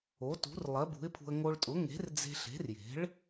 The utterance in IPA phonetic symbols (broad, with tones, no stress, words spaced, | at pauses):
o˩˥tṳ˩˥r lˠɜ˩˥bṳ˩˥ɪ̯pʰṳ˧ə̯ ŋo˧ɭtʼʊ˩˥ ŋe̤˩˥rd͡ze̤˧ɬe̤˩˥rje̤˩˥ɭ